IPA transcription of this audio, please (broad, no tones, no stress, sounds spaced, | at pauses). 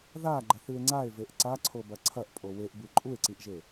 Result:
ð a ɡ͡ǃ ɐ θ ɨ e̯ ŋ͡ǀ a e̯ v e ʔ ǀ a ǀʰ o b ɐ ǀʰ ɐ ʔ pʼ o w e ʔ b ɨ ǃʼ u e̯ ǀ i ʔ ʒ e